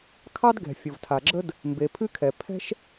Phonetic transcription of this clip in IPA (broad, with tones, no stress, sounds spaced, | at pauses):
kʰ ɑ˥ d ɡ ɛ̤˩ fʲ ə˩ v tʰ a˩ ɡ͡ǁ ə˥ d | m b e˩ pʰ ɨ˥ kʰ ɛ˩ pʰ ɛ̤˥ ʃ